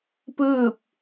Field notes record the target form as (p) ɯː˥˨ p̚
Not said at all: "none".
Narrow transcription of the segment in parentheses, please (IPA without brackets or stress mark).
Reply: p